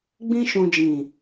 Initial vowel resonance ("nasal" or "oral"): nasal